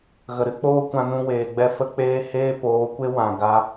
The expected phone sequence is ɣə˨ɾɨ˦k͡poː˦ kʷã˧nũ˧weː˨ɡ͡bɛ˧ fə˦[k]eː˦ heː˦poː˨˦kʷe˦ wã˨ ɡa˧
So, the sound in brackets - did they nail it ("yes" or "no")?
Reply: no